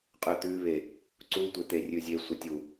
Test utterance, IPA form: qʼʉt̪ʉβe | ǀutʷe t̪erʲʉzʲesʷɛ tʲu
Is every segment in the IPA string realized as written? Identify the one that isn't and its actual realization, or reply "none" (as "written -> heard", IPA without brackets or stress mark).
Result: none